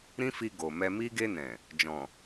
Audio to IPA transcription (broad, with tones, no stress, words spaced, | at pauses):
ɾĩ˦fi˧ ɡo˨mɛ˧mi˦ ɡe˧nɛ̃˨ | d͡ʒɔ̃˨